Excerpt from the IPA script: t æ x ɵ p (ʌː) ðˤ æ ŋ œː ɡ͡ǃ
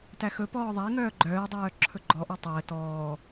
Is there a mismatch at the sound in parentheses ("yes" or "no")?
yes